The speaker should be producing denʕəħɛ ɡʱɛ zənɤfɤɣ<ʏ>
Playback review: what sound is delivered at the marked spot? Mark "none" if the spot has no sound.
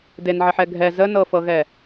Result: ɛ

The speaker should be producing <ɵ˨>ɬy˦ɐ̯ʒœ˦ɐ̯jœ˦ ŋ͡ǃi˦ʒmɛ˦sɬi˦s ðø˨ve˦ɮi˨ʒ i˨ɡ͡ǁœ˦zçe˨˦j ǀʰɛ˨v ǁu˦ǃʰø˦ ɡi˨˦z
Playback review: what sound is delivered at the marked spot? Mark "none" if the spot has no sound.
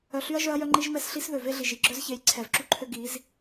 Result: œ˨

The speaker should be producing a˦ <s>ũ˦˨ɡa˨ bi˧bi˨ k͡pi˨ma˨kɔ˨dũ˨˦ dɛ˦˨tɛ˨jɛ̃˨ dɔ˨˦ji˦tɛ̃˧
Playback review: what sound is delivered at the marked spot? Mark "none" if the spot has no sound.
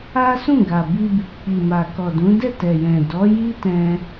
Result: s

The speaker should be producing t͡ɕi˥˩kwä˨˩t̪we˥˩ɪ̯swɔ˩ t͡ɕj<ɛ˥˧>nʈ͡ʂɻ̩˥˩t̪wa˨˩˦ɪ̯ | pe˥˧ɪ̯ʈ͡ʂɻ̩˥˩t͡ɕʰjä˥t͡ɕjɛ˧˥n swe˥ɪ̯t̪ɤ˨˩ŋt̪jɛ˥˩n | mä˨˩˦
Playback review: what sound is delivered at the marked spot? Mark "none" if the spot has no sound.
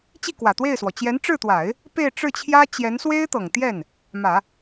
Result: ɛ˧˥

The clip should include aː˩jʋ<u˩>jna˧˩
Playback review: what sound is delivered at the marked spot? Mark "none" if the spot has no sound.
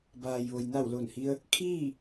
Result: o˩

